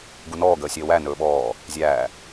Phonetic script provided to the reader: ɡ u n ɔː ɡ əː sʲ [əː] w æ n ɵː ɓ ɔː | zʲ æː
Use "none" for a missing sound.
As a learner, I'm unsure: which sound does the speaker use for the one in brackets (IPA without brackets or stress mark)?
əː